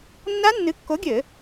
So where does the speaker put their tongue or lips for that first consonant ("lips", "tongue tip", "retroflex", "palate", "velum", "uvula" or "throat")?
tongue tip